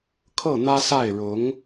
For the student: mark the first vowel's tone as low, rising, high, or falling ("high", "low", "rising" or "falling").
falling